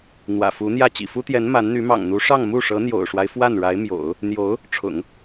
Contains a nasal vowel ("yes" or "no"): no